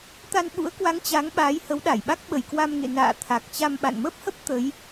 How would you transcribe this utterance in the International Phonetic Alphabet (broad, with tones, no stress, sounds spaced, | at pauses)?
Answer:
t̪ a˧ n ɓ ṵ˧˥ ə̯ k w a˨˦ ŋ t͡ɕ a˨˦ ŋ ɓ aː˨˦ j h ə˨˦ w ɗ a˧˩ j ɓ a˦˥ k̚ ɓ ə˧˩ j k w a˧ m ŋ ḛ˧˨ n a̰ː˧˨ t̪ʰ a˨˩ k̚ t͡ɕ a˧ m ɓ a̰˧˨ n m ə˦˥ p̚ h ə˦˥ p̚ t̪ ə˨˦ j